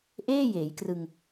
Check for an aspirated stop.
absent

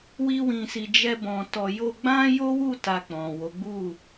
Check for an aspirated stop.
absent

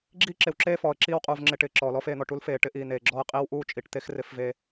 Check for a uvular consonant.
present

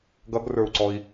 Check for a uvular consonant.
absent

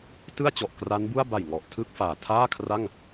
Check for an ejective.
absent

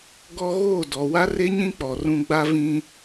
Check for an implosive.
absent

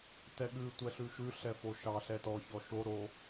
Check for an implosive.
present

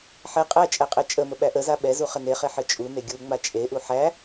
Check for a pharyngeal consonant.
present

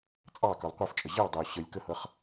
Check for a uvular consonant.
present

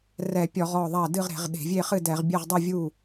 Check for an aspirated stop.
absent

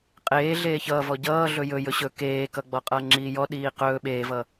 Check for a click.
present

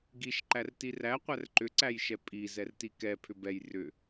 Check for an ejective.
present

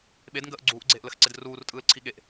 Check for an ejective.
present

